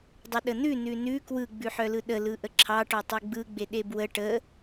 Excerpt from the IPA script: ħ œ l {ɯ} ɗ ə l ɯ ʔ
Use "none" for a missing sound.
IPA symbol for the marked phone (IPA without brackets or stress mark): ɯ